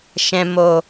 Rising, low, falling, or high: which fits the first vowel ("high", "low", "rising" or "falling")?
low